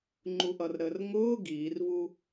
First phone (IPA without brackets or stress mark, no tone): ŋ͡ǃ